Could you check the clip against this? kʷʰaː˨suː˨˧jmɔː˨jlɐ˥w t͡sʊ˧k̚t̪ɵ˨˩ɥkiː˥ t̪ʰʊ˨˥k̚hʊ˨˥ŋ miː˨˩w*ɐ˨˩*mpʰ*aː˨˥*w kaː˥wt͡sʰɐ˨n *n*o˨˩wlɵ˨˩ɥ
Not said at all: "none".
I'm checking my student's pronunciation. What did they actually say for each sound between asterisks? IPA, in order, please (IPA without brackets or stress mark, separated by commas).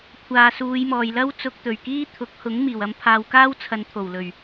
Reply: ɐ˧, aː˨, t̪ʰ